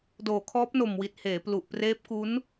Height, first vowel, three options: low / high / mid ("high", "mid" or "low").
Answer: mid